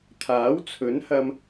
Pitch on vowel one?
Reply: rising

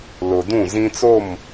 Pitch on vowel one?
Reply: low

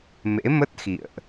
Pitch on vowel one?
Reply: rising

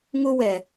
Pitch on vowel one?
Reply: high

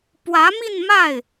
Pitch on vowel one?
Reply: rising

